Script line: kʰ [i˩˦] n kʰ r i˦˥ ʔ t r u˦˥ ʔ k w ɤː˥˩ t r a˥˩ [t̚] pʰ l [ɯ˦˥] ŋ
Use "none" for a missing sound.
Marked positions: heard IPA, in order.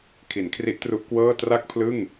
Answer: i˩˦, k̚, ɯ˥˩

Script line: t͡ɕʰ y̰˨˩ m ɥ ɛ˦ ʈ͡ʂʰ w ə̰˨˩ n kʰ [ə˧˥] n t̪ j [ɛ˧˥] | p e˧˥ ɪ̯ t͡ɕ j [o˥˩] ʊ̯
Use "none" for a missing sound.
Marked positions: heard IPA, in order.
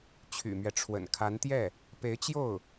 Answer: a˧˥, ɛ˥˩, o˥˩

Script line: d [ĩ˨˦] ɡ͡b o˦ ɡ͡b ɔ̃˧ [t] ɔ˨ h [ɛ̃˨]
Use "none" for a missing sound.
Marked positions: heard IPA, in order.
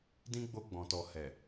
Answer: ĩ˦, t, ɛ˨

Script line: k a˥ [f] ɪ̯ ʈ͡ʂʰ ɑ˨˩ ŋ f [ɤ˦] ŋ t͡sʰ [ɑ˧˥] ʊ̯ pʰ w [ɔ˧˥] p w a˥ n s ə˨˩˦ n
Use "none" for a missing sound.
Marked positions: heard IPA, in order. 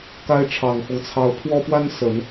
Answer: none, ɤ˦, ɑ˧˥, ɔ˥

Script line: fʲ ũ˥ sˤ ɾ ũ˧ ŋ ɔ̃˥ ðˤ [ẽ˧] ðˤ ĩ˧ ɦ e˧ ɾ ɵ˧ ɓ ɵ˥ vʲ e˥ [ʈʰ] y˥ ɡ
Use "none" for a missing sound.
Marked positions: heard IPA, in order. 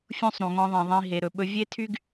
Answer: ẽ˧, tʰ

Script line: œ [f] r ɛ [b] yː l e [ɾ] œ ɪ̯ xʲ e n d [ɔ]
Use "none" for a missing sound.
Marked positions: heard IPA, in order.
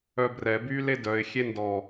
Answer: b, b, d, ɔ

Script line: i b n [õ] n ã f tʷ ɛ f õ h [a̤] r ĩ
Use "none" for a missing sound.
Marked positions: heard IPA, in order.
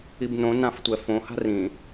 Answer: õ, a̤

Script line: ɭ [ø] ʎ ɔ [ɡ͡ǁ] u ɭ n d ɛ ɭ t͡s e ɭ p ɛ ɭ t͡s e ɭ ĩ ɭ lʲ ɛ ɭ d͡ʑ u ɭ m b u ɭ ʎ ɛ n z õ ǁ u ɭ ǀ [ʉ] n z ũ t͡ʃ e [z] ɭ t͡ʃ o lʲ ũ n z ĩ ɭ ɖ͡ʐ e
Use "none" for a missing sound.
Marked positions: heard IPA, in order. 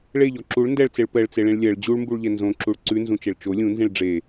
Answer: e, ǁ, ʉ, none

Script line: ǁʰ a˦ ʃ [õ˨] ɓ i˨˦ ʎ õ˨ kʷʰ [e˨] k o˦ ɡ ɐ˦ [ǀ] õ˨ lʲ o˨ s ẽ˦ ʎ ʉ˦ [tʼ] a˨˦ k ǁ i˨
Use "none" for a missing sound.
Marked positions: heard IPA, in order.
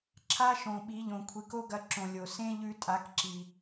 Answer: õ˨, i˨, ǁ, tʼ

